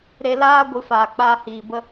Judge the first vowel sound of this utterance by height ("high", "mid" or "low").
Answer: mid